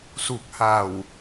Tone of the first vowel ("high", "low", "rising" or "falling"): low